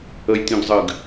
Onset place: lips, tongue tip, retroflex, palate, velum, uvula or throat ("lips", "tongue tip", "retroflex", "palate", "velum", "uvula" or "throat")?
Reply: palate